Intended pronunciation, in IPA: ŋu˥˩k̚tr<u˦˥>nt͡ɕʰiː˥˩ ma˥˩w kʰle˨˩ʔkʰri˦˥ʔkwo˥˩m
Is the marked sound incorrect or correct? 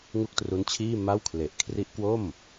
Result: correct